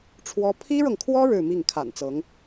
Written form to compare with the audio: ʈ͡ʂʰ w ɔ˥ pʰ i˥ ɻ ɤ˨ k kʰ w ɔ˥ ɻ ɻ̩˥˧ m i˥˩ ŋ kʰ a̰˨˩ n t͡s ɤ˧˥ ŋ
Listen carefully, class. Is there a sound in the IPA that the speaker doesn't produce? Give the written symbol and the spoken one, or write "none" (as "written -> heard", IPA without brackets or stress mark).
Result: k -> ŋ